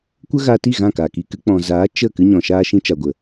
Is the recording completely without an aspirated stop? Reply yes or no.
yes